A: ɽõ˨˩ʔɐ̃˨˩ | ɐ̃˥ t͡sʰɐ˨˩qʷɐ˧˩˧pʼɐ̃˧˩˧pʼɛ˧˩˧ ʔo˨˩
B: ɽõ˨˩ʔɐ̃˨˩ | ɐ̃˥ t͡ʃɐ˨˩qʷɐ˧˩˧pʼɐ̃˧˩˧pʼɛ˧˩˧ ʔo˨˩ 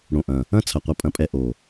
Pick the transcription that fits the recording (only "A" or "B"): A